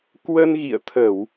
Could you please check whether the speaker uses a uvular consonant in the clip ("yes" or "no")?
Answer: no